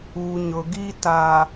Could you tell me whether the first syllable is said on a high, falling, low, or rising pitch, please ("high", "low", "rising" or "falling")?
low